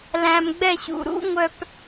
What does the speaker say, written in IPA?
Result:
læ̃˨mɡ͡bɛ˦˨ɕṵ˨ ɾṵ˦ŋʷœ˨p

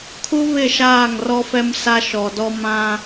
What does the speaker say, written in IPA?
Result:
kʰu˦βɪ˦˨ ʃaː˦˨ŋrɔ˦fɛ˦m sa˦ʃɔ˨dɔ˦ mã˦

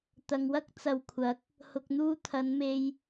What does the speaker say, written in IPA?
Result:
t̪ɐ˨ŋwɐ˥k̚ t͡sɐ˨wkʷʰɐ˨˥k̚ | hʊ˨k̚n̪uː˥ t̪ʰɐ˨˧nme˧j

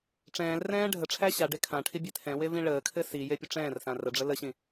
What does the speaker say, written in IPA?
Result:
ʈ͡ʂɛ̃ːlrɛ̃ː ɖʱəʈ͡ʂʰæ ɕaɖe kʰãʈʰi bʲetʰɛ̃we vĩɭəːkʰɘ sije pʲəʈ͡ʂɛ̃ːrsã rəɖ͡ʐə ləɕĩ

